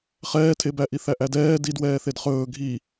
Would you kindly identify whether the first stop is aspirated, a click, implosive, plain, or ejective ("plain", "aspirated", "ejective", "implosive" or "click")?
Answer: aspirated